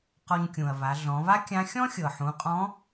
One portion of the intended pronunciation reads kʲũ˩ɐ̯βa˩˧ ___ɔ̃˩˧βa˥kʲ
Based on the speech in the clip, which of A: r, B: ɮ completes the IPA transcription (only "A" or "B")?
B